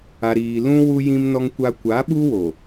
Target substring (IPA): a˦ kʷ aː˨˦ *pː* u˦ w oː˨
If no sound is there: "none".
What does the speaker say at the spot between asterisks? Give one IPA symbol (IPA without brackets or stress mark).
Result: ɓ